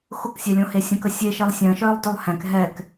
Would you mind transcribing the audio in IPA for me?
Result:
xʊksʲɛlʲõ hesʲə̃kə sʲeʃelˠ sʲə̃ːʃœːlˠ dœlˠhɛ̃k ɦɛk

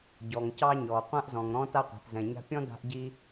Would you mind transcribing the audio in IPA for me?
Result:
ɟɔ˩ŋ cɑ˥ ɲɔː˩qʷã˥ʔzɔ̃˩ŋ ɾɔ̃˥ ta˥qʷɛ̤˩tzɛ̃˩ɲa̤˥ pʲɔ̃˥ da̤˥ʔɟi˥

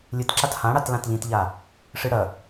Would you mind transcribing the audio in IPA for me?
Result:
lʲɨt ǁathãɽat lãtʎĩtʎa | ʂɨɽɐ

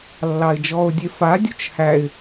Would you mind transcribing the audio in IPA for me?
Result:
lːɑɪ̯d͡ʒɔʊ̯ dʲefa dʲut͡ʃhæɪ̯

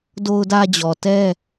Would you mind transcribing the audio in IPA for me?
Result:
do˦ʊ̯dä˦d͡ʑɔ˨ tɛ˦

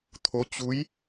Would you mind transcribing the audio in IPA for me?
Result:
t̪ʰo˧˥t͡ɕu˧˥j

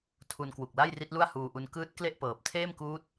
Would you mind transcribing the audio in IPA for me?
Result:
tʰu˧nkwu˨˩k̚la˥˩jri˦˥t̚ lu˥˩a̯huː˧ʔu˧n kɯː˦˥t̚ kle˥˩ʔpɤː˨˩p̚ tʰeː˥˩mkuː˦˥t̚

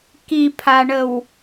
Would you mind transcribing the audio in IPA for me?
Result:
kipʰaɳəw

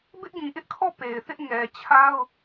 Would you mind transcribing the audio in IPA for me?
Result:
bɪ˦ʔɡĩ˨ʔɪ˦ʔkʰɔ˦˨ pe˨ɪ̯θɪ˦ʔ ŋɛ˨t͡ɕʰa˦ʊ̯

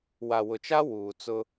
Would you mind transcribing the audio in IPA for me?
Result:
wa˨wʊ˨t͡ʃa˦ wuː˨t͡sʊ˦

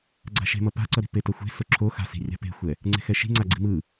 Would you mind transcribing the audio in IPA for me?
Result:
ɡ͡ǀa̤ʃe̤ mʌpa̤ǀʌɾi̤ petʌxʷe̤ soǁʰo xa̤si̤ rʲa̤pe̤xʷɛ | ŋ͡ǀe̤xɛʃi̤ ŋ͡ǀaɡ͡ǀi̤mɯ

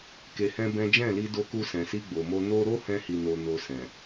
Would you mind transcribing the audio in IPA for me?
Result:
ke˧hɛ̃˦bɛ̃˦ d͡ʒɛ̃˦˨li˧do˧ku˧ sɛ̃˨si˧ɡ͡bo˨mo˧ no˦ ɾo˦hɛ̃˧hi˨no˨ no˧sɛ̃˨

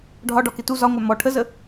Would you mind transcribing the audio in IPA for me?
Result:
ɖʱɒɖɒkɪ tu zɒŋʷæ mɔ ʈʰəzə

